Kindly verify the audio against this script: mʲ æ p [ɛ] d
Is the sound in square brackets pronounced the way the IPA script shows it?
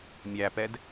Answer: yes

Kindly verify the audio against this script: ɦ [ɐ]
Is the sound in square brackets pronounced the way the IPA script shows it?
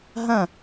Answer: no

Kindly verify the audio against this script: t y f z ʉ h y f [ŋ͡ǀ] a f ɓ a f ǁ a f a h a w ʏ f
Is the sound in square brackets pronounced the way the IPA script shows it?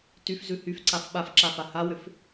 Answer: no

